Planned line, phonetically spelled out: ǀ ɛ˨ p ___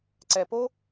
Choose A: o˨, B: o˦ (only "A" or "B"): B